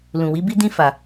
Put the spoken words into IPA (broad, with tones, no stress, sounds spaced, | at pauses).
l ũ˨ w i˨˦ b i˦ d ĩ˦ f a˦˨